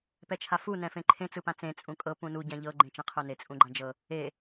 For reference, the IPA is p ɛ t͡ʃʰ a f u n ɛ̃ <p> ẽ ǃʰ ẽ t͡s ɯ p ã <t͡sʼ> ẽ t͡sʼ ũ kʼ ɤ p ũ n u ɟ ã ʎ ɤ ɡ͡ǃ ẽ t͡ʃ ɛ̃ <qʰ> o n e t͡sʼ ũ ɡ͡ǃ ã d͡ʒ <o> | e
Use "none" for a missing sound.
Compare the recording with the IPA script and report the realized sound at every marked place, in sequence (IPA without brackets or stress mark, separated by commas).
f, t͡s, qʰ, ɤ